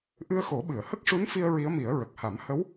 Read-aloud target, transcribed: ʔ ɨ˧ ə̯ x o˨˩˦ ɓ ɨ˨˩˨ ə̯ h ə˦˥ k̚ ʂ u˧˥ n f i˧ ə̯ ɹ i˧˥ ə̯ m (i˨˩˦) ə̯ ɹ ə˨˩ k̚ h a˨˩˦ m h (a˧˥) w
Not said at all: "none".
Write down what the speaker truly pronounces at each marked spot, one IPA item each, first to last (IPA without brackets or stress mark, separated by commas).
i˨˩˦, ə˧˥